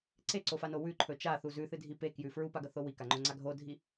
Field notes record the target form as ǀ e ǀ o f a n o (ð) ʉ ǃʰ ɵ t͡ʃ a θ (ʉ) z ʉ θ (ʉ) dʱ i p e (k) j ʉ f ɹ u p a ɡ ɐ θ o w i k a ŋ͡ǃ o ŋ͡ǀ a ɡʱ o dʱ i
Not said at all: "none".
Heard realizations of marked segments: w, u, ɨ, k

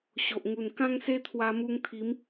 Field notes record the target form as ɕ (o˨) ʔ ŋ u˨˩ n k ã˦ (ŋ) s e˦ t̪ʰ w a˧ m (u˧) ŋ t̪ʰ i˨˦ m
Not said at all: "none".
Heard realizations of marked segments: o˨, ŋ, u˧

